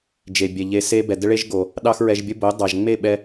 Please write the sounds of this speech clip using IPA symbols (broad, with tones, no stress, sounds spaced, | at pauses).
d͡ʒ e˨ bʲ ɛ˨ ʎ e˧ s e˦ b ɛ˨ d ə˦ ɭ e˦ ʒ ɡ o˨ | ɗ ɑ˦ x ɹ ɛ˧ ʒ bʲ ə˦ b o˨˦ dˤ ɑ˨ ʒ ŋ͡m e˦˨ ɓ ɛ˧